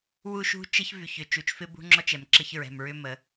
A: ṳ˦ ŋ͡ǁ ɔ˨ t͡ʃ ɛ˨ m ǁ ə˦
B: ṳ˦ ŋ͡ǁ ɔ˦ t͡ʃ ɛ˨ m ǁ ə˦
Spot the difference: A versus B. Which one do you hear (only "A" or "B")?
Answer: B